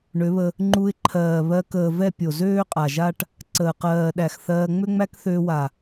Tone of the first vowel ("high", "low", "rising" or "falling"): rising